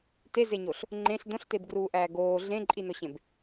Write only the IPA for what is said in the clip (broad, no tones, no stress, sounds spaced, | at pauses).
t e z e ɲ o ɬ | ŋ͡ǃ ẽ ɬ d õ ɬ t e b ɡ r uː ʔ æː ɡ oː ɮ ẽ ǃʼ i n o ɕ ẽ b